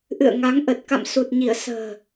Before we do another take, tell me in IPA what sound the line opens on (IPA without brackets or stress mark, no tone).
ʔ